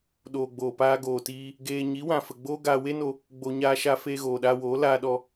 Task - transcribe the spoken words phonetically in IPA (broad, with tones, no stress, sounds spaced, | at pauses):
ɗ oː˨ ɡ͡b oː˨ p aː˧ ɡ oː˨ t iː˧ | ɡ eː˧ ɲ i˨˦ w ã˨ f ə˨ ɡ͡b oː˦ ɡ aː˧ w e˦ n o˧ | ɡ͡b o˧ ɲ aː˧ ʃ a˧ f eː˧ ɣ oː˨ ɗ aː˧ w oː˨˦ l aː˧ ɗ ɔ˧